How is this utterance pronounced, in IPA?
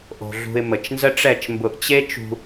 ʔo̤˧ɮṳ˧ɪ̯ mə˨t͡ʃnzə˦ʈ͡ʂɛ˦˨t͡ʃmbʊ˧ʔ t͡ɕe˦t͡ʃṳ˧

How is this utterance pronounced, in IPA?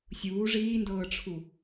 sʲuː ʐiːndɤːʈ͡ʂʰu

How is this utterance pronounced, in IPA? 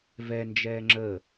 vɛnd͡ʒɛː ŋ͡ǁəː

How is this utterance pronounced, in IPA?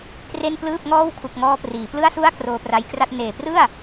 kre˥˩n plɯː˥˩p̚ŋɔː˥˩w kʰu˨˩k̚ŋɔː˧ priː˩˦plɯ˥˩a̯su˥˩a̯ kroː˧pra˧jkra˥˩t̚ neː˨˩prɯ˥˩a̯

